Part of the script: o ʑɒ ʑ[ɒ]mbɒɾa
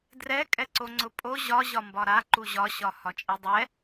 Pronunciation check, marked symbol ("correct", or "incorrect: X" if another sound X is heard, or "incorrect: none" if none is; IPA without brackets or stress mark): correct